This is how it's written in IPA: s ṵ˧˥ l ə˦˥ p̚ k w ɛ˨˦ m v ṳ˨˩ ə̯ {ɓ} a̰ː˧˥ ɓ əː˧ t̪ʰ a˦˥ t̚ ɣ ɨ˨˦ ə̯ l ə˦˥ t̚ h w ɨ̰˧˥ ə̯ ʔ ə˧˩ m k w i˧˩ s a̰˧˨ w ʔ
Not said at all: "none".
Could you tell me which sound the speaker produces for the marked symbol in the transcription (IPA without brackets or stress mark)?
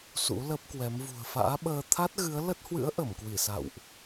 f